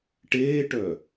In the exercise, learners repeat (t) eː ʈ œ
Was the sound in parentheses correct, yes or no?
no